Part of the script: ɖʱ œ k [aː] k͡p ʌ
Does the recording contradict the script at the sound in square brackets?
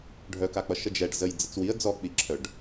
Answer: yes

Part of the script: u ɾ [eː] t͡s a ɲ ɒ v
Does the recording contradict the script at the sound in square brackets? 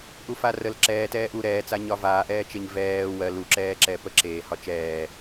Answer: yes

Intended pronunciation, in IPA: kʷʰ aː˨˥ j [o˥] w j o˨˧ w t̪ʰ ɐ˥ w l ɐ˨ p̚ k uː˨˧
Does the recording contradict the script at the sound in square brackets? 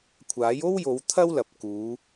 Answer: no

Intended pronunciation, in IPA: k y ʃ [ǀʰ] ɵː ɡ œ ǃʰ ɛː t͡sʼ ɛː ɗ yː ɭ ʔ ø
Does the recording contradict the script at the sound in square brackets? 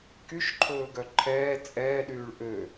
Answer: yes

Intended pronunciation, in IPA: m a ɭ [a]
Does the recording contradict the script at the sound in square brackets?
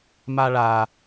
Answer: no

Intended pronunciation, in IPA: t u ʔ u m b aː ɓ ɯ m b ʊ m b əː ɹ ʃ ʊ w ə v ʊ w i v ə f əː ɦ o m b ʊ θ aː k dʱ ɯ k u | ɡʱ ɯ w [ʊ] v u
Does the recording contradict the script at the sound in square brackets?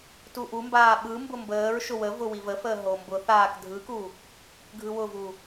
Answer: no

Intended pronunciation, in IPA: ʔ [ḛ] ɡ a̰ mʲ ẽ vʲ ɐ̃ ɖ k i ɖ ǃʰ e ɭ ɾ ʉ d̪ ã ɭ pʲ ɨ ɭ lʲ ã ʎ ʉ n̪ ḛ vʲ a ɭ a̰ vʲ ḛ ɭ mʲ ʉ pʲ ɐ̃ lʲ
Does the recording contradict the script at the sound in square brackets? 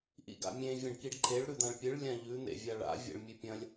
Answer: yes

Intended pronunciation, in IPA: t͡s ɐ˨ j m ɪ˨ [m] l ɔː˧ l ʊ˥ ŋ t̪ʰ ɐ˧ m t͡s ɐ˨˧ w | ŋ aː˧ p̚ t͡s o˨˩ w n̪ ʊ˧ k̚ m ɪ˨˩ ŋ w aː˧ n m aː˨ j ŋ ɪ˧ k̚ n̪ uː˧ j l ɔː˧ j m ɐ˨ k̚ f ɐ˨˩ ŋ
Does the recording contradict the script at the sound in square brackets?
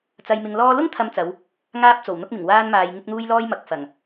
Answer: yes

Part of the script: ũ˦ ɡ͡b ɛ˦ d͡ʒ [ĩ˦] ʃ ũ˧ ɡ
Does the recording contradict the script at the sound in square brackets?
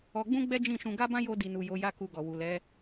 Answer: yes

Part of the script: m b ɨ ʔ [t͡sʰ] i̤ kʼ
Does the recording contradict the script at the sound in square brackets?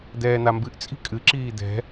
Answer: yes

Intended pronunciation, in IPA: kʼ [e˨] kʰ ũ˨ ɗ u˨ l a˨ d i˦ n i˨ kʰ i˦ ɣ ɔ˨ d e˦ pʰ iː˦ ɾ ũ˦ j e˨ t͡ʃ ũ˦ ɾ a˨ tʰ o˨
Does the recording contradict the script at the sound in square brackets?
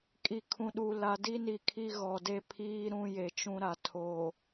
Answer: yes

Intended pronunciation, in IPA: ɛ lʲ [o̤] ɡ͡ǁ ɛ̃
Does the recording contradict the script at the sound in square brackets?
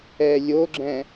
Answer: yes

